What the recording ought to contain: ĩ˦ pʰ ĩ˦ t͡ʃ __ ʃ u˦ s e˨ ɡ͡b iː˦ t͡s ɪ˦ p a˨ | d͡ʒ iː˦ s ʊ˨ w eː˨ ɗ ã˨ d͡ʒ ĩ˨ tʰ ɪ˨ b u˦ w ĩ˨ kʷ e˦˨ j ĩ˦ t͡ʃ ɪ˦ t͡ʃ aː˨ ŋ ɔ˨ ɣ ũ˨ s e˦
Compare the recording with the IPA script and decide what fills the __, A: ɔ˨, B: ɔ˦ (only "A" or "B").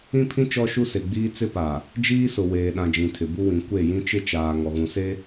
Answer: B